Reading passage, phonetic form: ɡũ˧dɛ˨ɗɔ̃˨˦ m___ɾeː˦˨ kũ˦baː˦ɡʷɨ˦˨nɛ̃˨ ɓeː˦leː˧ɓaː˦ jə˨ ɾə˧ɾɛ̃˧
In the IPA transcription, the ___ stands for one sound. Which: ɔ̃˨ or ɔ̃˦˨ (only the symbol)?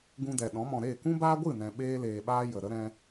ɔ̃˨